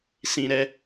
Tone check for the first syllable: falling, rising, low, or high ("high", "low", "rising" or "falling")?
high